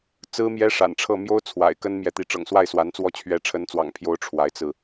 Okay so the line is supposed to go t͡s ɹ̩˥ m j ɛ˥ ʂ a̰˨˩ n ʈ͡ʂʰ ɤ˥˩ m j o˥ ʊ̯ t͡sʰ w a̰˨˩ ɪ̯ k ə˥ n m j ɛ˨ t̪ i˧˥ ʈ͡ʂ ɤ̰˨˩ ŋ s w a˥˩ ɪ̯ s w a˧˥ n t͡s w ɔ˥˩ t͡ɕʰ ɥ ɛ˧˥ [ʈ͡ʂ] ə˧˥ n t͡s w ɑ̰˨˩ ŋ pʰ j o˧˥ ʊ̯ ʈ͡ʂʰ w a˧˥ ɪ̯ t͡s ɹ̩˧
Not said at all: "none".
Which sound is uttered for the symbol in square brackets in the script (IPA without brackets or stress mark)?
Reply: ʈ͡ʂʰ